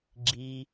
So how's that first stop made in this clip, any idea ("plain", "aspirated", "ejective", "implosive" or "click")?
click